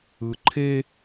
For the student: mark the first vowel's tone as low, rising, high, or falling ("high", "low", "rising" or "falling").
low